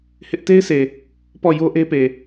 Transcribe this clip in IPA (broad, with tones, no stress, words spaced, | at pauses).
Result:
hɪ˦ʔ te˦ɪ̯sʰe˨ | pɔ˦˨jo˦ʔe˦pe˨